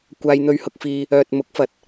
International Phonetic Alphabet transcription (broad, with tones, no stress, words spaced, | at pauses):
kʷaː˧jn̪ɵ˧ɥhʊ˧k̚fiː˧ | œː˨t̚ mʊ˨˥k̚fɐ˨t̚